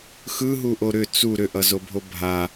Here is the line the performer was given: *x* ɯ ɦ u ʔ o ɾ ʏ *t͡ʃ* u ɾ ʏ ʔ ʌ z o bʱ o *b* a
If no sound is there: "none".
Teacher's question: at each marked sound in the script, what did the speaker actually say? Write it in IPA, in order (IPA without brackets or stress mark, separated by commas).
x, t͡s, bʱ